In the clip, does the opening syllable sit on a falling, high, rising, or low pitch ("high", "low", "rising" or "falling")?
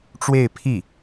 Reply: falling